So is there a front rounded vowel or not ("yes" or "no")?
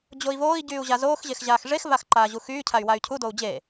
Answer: yes